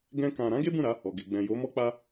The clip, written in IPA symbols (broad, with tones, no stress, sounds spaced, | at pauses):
ɡ ɛ̃˦ k ã˧ ɾ ã˦ ɡ e˦ b ũ˦˨ ɾ a˨˦ | ɔ˨ ɡ e˨ ɡ͡b ɛ̃˨ j o˨˦ m ɔ˦ k͡p a˦